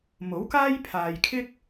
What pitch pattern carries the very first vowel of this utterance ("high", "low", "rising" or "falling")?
rising